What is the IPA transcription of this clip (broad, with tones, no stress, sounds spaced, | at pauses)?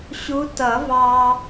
ɕ u˧˥ t ʌ˨˩˦ v ɑ˧